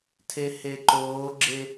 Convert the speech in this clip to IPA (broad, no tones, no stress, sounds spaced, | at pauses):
tʰ e h e ǃ oː ɡ͡ǁ e